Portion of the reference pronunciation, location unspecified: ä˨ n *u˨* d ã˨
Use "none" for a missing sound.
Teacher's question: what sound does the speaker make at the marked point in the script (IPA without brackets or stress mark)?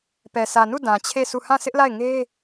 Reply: u˦˨